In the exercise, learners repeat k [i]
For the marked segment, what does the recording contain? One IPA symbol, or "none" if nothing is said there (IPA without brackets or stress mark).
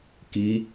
i